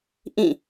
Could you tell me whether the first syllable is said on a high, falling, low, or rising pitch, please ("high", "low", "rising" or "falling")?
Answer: falling